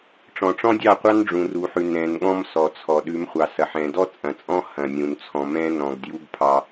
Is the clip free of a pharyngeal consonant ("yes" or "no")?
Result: no